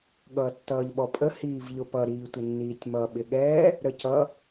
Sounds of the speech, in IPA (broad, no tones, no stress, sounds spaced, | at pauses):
ɠ ʌː tː ʌː ʎ ɓ ɔ pʼ ə h iː v ʎ ʊ p ʌ ɾ iː tʷ ə nː iː tʲ m ʌ ɓ ɪ ɠ ɛː | ɾ ə c ʌ